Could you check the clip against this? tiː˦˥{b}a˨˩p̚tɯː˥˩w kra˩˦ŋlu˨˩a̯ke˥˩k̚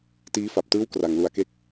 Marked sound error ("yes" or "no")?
yes